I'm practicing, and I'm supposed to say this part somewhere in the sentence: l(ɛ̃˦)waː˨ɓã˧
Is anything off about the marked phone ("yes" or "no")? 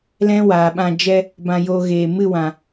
no